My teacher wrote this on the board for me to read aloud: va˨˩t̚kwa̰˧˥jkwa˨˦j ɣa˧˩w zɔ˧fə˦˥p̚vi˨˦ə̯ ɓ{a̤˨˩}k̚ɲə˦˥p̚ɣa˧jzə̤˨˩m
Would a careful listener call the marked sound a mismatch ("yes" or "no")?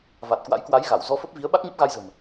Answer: yes